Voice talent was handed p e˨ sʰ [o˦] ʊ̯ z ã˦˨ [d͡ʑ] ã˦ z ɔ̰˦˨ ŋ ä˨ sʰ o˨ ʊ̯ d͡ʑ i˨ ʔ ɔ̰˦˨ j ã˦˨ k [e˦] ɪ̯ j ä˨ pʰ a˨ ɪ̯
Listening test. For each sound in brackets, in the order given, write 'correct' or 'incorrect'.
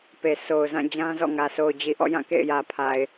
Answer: incorrect: o˨, correct, incorrect: ḛ˦˨

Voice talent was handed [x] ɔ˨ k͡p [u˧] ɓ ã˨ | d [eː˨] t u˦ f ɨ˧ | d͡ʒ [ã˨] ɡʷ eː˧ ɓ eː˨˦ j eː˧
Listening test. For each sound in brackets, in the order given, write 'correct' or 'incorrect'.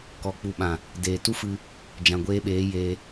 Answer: incorrect: k, incorrect: u˨, correct, correct

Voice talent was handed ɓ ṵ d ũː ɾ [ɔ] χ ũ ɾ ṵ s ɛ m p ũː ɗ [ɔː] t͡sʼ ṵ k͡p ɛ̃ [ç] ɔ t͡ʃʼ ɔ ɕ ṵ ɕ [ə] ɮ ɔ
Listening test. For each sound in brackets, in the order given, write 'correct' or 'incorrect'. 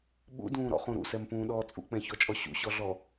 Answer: incorrect: ɔ̰, correct, correct, incorrect: ɔ

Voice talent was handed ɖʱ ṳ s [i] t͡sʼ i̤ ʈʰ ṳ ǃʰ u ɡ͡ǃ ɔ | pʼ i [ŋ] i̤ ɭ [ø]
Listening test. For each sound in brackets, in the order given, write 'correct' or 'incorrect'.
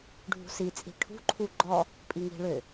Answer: correct, correct, correct

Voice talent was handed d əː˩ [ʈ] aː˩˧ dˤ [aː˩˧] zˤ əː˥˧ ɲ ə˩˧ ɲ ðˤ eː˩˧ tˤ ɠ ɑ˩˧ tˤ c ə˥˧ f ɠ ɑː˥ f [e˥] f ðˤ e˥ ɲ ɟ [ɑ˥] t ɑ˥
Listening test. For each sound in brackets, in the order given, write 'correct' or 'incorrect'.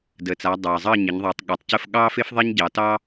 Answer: incorrect: t͡s, incorrect: aː˩, correct, incorrect: ɑ˩˧

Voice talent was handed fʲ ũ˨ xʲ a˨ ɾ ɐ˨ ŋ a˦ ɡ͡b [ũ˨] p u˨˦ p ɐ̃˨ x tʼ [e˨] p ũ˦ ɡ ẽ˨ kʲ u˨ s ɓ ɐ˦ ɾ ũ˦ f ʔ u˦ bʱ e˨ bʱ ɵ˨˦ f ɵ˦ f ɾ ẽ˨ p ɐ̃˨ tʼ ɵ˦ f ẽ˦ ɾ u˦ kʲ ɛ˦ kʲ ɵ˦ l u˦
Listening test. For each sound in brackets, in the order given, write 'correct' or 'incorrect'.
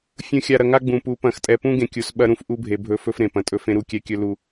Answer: correct, incorrect: ɛ˨

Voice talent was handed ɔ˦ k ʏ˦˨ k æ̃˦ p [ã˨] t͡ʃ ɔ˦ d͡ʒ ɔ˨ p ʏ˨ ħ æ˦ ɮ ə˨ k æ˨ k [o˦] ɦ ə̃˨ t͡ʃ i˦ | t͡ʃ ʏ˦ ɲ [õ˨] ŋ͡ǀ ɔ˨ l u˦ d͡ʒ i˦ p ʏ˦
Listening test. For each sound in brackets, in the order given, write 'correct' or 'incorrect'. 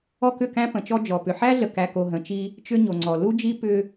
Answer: incorrect: ə̃˨, incorrect: o˨, incorrect: o˨

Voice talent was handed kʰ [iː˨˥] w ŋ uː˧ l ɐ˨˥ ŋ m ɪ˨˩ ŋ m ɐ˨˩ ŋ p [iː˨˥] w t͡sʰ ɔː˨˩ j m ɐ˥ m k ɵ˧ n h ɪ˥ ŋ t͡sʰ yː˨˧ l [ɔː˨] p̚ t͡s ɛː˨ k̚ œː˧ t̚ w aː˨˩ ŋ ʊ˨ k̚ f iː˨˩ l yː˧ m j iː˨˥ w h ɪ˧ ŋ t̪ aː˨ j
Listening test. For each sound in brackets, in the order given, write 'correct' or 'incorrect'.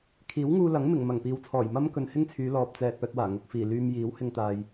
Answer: correct, incorrect: iː˨, correct

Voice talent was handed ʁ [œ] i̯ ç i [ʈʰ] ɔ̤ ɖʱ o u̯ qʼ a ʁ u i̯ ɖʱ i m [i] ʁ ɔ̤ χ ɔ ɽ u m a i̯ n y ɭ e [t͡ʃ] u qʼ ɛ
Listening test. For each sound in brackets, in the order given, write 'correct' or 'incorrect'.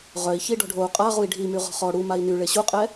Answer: correct, incorrect: ɖ, incorrect: y, incorrect: ɕ

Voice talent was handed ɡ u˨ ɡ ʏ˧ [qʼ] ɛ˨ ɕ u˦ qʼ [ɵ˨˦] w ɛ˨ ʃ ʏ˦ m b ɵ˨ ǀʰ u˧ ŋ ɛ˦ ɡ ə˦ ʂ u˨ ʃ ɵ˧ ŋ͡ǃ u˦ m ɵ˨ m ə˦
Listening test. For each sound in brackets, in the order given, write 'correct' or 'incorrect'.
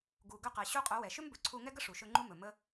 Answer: incorrect: q, correct

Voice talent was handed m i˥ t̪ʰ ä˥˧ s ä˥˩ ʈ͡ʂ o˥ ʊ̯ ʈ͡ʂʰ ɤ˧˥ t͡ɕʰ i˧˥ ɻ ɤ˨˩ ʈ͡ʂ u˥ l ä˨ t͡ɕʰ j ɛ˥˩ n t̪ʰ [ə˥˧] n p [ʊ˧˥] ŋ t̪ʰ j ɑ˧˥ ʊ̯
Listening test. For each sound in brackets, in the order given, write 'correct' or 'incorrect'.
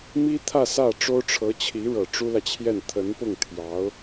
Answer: incorrect: ə˧˥, incorrect: ʊ˥˩

